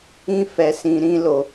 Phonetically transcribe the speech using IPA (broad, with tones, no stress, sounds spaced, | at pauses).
ĩ˦ f ɛ˧ s ĩ˧ ɾ ĩ˦ l o˧